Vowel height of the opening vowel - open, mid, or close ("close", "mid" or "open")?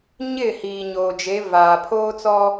close